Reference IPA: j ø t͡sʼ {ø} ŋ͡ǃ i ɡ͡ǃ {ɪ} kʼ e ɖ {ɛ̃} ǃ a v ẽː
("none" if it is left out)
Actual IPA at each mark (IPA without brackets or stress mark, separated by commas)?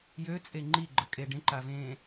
e, ə, ẽ